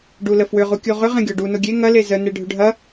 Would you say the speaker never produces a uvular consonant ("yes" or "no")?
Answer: no